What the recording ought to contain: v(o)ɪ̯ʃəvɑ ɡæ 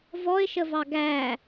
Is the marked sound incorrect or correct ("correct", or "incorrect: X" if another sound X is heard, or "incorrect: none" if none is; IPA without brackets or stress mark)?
incorrect: ɔ